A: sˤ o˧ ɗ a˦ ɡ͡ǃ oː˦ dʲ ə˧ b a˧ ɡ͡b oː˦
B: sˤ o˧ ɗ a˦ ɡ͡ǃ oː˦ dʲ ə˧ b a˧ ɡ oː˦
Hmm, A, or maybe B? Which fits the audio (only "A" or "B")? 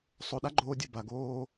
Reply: B